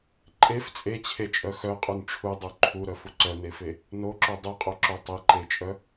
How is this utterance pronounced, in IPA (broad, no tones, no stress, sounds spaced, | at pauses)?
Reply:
ǃʼ e f t͡sʼ e t͡ɕʰ e t͡ʃʼ œ x œ qʼ u n ʈ͡ʂʰ u dˤ u ǃʰ u ɾ œ f u ǀ œ n e f e | n o ǁ o dˤ u qʼ o ǁ o tˤ e ǃ e t͡ʃʼ œ